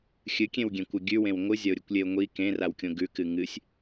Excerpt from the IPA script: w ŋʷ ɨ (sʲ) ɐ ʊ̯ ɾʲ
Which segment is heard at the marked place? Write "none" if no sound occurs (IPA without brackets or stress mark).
zʲ